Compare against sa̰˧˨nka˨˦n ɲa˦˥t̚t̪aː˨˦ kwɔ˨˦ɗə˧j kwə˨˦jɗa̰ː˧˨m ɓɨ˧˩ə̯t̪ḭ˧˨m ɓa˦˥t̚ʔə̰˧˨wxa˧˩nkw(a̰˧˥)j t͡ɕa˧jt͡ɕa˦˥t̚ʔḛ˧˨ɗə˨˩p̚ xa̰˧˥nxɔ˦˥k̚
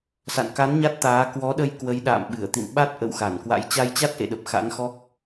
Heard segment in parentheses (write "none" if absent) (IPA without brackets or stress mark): a̰˧˥